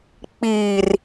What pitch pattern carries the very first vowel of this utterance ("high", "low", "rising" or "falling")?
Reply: low